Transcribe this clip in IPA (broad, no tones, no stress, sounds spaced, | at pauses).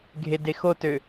ɡʱ e d e x o t ø